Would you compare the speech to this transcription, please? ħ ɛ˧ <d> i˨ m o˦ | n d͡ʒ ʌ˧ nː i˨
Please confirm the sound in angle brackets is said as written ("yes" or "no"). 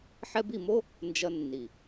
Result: no